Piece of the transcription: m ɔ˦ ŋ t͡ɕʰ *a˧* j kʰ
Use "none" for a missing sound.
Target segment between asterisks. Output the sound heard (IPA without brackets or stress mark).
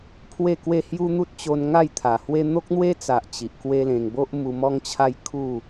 a˦